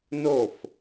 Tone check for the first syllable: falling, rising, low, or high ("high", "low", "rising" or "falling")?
falling